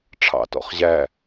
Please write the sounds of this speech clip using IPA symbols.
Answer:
ʈ͡ʂʰ ɑ̰ t ɔ̰ χ ʑ æ

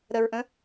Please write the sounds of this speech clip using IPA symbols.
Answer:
ɾ ə ɹ ʔ ə̃

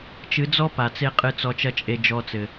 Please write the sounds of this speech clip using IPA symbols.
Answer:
t͡ʃ ɨ˨˦ d͡z ɔ˦ p a˨ t͡s e˦ qʼ ɨ˧ t͡s ɔ˧ t͡ʃ ɐ˦ t͡ʃʼ e˧ d͡ʒ ɔ˧ t͡s ɘ˨

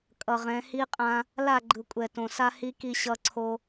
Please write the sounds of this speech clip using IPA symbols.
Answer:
kʼ ʌ˨ ʁ ɛ̃˨˦ h i˦ qʼ ã˦ | l a˦˨ ɡ͡ǃ ɯ˨ kʷʼ ɛ˨ t õ˨ s a˦ h i˦ k i˦ ɕ ʌ˦ ǀʰ o˦

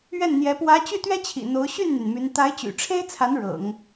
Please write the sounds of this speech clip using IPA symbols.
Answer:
ɥ ɛ˥˩ n n̪ j ɛ˧˥ p w ä˧˥ t͡ɕ y˥˩ t̪ ɥ ɛ˥ t͡ɕʰ ḭ˨˩ n̪ o˧˥ ʊ̯ ɕ y˥˩ n n̪ y˩ n m y˧˥ n t̪ a˧˥ ɪ̯ t͡ɕ y̰˨˩ ʈ͡ʂʰ e˥ ɪ̯ t͡sʰ a˧˥ n ɻ ɤ̰˨˩˦ ŋ

